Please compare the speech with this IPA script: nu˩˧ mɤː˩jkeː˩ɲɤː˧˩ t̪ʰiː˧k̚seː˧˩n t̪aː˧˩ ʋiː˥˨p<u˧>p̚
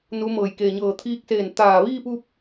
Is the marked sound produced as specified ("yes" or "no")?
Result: yes